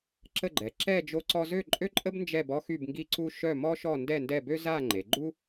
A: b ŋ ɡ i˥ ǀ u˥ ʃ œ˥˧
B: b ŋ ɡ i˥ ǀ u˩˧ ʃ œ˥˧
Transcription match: A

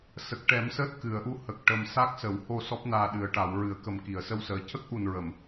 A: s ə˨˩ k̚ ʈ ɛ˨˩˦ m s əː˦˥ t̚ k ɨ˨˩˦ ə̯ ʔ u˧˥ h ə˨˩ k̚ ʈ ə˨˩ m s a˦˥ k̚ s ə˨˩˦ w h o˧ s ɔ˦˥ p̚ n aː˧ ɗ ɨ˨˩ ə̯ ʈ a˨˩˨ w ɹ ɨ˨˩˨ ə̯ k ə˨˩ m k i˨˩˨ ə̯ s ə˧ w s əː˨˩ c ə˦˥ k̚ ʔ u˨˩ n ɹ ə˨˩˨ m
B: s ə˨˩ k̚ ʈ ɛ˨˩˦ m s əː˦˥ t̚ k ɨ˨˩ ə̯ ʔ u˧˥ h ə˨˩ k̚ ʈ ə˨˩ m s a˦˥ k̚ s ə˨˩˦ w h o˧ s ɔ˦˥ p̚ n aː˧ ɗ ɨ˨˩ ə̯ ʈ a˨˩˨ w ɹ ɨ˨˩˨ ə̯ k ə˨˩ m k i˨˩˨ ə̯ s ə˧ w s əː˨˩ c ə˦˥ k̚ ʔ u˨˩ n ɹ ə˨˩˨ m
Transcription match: A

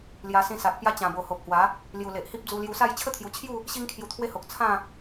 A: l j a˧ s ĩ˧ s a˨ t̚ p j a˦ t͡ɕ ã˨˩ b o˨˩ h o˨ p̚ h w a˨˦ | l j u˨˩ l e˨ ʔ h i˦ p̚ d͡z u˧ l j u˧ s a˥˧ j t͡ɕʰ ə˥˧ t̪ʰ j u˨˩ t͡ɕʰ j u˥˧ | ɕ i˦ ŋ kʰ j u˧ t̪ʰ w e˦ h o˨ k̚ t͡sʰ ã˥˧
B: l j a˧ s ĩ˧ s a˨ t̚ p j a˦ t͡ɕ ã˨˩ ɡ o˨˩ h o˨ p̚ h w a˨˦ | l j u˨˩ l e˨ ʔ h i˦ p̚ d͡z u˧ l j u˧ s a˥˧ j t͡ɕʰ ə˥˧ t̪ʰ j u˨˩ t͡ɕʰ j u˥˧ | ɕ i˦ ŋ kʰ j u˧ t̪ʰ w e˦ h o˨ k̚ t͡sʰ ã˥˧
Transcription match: A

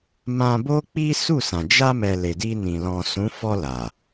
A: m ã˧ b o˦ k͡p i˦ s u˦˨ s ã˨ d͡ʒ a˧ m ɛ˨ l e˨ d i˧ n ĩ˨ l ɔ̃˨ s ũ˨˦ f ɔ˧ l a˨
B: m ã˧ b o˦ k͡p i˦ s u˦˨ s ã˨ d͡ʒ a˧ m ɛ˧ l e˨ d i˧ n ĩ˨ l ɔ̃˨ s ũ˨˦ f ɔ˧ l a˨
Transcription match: A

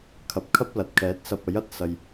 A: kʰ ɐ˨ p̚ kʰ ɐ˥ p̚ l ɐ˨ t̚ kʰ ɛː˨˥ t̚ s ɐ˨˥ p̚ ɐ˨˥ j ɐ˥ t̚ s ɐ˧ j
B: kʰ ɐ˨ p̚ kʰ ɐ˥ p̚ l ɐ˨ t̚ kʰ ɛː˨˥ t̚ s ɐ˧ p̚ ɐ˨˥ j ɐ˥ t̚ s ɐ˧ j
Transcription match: B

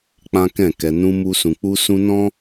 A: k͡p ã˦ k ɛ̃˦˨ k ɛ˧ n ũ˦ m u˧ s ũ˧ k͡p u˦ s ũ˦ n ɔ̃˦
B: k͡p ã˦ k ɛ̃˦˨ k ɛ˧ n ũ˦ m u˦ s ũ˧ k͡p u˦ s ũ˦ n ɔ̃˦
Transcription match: B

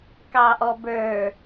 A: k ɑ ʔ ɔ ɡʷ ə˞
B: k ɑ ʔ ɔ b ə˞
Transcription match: B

